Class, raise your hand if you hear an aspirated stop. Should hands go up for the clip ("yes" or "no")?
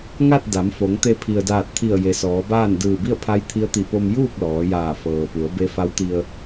yes